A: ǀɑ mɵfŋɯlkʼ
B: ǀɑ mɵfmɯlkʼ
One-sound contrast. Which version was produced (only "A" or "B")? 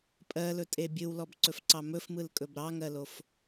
B